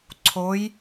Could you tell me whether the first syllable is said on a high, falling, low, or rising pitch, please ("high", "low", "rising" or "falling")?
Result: rising